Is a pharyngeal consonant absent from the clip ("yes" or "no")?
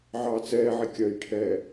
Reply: no